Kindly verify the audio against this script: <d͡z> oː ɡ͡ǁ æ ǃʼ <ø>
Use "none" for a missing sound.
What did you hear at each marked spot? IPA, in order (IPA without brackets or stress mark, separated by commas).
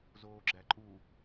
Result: z, u